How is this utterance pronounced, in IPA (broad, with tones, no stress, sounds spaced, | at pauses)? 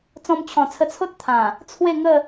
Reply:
t͡s ɔ̃˧ m t͡ɕʰ ɔ̃˨˩ t͡sʰ ə˧ t͡sʰ o˦ t̚ t̪ʰ ã˨˩ | t͡sʰ w e˥˧ ŋ ə˥˧